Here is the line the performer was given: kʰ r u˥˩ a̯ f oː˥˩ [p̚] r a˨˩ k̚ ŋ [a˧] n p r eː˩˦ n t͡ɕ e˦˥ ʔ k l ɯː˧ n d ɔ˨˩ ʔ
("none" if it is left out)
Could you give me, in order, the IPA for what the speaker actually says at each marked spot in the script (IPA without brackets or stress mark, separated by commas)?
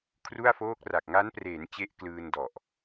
k̚, a˦˥